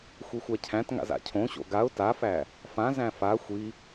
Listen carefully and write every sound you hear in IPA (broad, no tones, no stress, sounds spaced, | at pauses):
xʷ i xʷ æ cʰ æ̃ t ŋ a̰ z a̰ cʰ õ ɕ o̰ ɡ a ʊ̯ t a f æ | f ã z æ̃ f a xʷ i